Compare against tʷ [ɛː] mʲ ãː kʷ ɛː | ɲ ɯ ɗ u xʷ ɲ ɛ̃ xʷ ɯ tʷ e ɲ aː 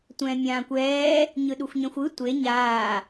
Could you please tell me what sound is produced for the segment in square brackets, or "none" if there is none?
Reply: ɛ̃ː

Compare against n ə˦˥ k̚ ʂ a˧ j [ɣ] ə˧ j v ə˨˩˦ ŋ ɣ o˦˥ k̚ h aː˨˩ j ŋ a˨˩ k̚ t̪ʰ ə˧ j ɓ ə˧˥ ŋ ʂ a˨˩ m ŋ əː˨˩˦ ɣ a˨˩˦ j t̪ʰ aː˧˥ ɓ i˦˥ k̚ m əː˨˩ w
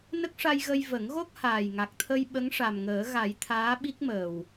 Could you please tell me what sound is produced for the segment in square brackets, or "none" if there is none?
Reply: ɣ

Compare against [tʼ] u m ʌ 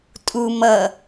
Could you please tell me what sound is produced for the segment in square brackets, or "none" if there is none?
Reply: tʼ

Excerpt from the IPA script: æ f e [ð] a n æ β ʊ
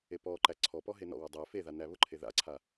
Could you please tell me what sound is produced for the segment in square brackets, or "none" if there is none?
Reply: ð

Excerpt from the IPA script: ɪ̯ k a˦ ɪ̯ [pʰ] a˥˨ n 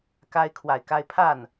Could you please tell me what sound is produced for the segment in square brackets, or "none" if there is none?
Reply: pʰ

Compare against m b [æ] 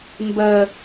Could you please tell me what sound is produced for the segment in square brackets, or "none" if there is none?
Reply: ɛ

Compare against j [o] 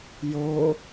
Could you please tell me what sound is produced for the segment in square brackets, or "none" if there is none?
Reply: o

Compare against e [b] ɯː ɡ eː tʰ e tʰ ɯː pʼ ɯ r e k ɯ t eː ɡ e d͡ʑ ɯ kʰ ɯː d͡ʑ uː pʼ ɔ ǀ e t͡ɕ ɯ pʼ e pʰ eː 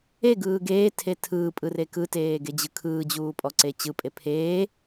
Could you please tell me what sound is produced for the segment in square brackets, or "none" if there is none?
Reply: ɡ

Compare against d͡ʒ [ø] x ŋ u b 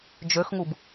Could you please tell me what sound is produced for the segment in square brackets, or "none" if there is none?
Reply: ø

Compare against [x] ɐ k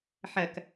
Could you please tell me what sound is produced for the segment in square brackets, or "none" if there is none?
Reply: ħ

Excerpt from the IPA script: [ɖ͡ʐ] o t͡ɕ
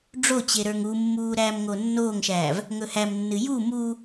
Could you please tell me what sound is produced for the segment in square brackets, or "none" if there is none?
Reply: ɖ͡ʐ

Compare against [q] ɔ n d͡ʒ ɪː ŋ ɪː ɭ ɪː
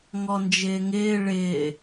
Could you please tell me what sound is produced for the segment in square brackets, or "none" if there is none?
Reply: ŋ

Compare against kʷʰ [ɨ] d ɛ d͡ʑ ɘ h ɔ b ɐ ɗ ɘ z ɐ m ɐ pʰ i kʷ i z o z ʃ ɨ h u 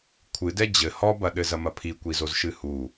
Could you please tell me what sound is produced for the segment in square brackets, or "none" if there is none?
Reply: ɨ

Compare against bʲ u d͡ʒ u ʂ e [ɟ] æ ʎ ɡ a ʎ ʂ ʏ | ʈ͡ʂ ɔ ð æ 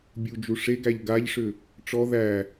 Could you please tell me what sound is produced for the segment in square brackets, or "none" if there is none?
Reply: ɡ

